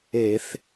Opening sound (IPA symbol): e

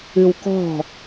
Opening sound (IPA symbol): ɨ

